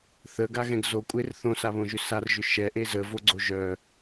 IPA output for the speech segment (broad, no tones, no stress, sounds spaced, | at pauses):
θ ə ɡ a ɣ ɛ̃ ɡ z o kʷʼ e r θ õ s a β õ ʒ ʏ s a r ʒ ʏ ʃ ɛ ʔ e z ə v o ɡ͡ǀ o ʒ œ